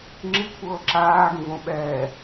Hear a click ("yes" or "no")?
yes